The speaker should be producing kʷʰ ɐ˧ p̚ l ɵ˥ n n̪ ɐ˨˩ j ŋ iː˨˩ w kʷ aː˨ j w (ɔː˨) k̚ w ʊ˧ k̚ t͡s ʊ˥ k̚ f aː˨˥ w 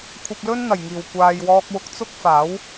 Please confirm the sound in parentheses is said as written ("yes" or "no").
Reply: no